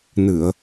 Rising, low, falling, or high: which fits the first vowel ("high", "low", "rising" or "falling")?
low